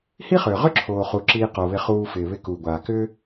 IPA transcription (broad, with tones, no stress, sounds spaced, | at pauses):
h i˦ χ ʏː˨ ʁ ʏ˦ ǁʰ oː˨ χ u˨ ǁ iː˧ q o˨ β ɪ˧ χ uː˧ f ɪː˨ β ɪ˦˨ k uː˨ ɡʷ aː˨ k ʏː˦